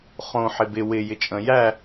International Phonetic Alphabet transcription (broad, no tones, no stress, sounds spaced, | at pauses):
χ õ ħ ɪ b ɪ w ɪ j ɪ t͡ʃʼ ə̃ j æ